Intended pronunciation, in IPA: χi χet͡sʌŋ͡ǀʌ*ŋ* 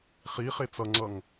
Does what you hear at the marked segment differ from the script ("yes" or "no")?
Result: no